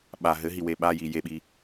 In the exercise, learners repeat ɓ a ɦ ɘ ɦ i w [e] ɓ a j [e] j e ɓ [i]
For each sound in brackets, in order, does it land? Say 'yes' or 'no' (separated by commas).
yes, no, yes